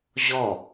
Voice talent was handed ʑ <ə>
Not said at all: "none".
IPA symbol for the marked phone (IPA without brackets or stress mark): ɔ